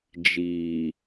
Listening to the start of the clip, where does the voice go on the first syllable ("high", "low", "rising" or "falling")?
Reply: low